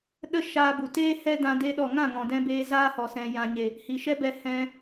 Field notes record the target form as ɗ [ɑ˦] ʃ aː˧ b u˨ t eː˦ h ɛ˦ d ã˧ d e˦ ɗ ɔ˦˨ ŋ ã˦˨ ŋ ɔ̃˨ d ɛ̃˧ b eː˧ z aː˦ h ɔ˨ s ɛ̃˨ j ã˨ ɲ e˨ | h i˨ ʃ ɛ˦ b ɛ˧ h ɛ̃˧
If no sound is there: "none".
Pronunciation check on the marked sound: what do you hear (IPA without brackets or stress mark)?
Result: ə˦